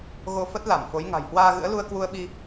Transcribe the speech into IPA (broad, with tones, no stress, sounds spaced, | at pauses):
ɣ o˧ f ə˦˥ t̚ l a˧˩ m f o˨˦ j ŋ a̤˨˩ j h w aː˧ ɣ ɨ̰˧˥ ə̯ l u˧ ə̯ k w u˧ ə̯ ɓ i˧